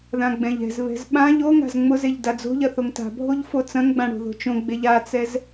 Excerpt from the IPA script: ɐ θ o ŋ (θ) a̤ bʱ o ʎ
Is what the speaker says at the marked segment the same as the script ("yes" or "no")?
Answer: no